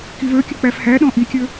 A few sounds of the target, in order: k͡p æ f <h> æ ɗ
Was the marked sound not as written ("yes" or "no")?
no